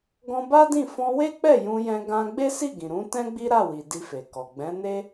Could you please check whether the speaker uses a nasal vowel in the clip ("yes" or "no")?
yes